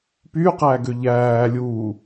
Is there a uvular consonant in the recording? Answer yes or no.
yes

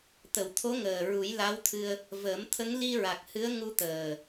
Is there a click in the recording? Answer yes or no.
no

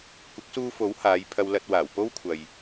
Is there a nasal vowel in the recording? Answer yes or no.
no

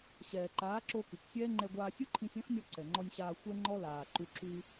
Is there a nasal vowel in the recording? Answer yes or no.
yes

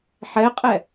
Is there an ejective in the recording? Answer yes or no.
yes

